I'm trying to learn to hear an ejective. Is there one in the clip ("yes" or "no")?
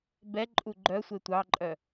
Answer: yes